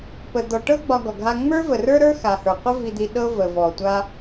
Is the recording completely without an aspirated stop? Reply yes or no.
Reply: yes